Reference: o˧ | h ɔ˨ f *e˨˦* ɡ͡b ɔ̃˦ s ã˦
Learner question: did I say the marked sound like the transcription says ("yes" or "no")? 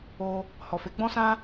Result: yes